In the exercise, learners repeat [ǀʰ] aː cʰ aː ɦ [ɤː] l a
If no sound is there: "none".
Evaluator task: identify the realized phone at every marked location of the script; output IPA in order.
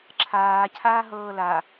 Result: ǁʰ, ɤː

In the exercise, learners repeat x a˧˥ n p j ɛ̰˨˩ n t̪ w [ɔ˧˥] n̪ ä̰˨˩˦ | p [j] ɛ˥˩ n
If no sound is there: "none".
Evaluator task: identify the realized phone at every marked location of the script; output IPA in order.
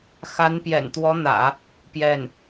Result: ɔ˧˥, j

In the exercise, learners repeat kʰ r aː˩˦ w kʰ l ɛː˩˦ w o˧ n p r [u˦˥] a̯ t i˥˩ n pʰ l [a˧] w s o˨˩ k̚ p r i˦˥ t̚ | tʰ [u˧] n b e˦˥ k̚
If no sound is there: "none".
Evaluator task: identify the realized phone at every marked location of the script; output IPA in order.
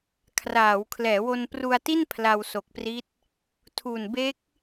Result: u˧, a˧, u˨˩

